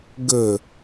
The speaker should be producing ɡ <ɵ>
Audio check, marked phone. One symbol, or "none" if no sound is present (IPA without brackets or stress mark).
ɵ